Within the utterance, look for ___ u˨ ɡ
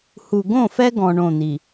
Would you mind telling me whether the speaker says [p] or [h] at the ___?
h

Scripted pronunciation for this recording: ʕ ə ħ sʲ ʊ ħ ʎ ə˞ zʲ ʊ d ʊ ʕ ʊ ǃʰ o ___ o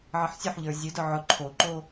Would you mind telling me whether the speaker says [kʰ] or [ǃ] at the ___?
ǃ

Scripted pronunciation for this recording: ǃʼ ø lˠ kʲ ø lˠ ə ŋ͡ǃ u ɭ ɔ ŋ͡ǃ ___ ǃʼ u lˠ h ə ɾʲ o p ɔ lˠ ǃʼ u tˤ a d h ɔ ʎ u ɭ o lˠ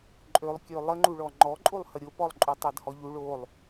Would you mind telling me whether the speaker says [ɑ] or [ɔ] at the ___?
ɔ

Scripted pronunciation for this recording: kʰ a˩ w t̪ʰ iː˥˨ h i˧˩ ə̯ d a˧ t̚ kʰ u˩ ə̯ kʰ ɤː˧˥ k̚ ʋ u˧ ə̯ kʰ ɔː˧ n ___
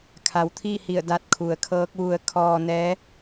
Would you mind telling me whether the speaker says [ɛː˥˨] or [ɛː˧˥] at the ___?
ɛː˧˥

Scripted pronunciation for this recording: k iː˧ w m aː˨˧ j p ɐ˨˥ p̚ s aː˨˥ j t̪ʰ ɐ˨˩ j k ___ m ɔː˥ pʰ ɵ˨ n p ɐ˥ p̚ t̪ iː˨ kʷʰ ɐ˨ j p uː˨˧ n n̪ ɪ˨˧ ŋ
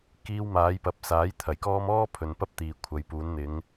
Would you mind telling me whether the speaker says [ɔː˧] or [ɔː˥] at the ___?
ɔː˥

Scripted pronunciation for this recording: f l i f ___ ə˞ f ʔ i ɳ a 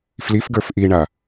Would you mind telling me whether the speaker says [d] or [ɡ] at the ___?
ɡ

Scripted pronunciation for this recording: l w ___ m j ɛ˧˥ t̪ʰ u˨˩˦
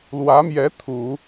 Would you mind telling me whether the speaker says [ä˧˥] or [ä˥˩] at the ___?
ä˧˥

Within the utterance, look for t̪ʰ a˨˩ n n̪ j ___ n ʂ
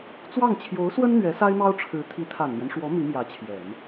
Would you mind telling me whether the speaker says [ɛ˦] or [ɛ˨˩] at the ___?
ɛ˦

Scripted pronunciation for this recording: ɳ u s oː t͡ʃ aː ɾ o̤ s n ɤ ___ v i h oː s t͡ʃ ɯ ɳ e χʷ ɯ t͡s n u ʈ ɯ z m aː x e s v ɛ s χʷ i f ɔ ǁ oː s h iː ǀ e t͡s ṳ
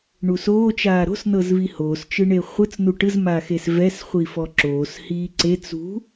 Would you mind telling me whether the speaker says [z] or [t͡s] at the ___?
z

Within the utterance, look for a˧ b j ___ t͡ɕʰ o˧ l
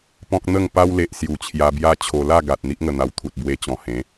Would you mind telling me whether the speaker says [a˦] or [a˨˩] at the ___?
a˦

